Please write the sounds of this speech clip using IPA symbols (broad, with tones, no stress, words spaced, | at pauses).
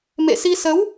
mḛ˧˨si˧sə˨˦w